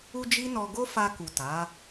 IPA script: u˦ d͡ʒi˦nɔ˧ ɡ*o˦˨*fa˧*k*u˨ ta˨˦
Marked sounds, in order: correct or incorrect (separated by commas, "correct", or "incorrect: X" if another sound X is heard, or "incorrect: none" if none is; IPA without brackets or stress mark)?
incorrect: o˦, correct